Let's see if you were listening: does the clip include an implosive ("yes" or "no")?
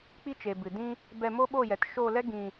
yes